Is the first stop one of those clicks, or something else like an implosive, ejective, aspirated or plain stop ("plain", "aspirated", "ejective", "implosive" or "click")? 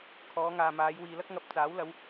aspirated